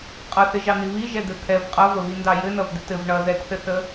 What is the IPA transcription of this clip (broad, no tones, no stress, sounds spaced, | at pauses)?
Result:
qʼ ʌ θ ɪ ʒ ɑ n̪ i β i ʒ ɛ d̪ ɘ t̪ʰ ɛ v qʼ ʌ v ə β i n d ɑ j ɘ n ʌ v d̪ ɪ t ɘ v ɳ ʌ ð ɛ t θ ɘ θ ə